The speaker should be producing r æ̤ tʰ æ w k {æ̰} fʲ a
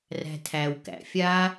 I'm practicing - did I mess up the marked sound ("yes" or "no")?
no